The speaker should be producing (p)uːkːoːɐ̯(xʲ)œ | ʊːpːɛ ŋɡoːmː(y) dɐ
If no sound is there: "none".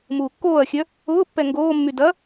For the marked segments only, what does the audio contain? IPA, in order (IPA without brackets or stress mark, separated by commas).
m, xʲ, y